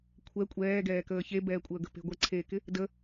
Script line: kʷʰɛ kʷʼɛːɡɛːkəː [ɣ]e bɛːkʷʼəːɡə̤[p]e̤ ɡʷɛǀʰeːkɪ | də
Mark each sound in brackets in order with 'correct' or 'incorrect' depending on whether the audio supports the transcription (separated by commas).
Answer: incorrect, correct